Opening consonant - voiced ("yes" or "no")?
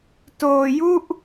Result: no